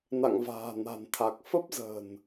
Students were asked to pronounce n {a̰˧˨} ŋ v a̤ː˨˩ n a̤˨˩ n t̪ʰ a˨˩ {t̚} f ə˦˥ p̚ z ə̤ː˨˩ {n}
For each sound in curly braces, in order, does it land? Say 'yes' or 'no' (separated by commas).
yes, no, yes